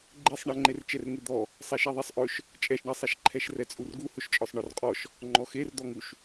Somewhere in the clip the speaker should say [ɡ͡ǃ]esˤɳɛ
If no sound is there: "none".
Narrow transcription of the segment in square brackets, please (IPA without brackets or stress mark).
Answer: ɡ͡ǃ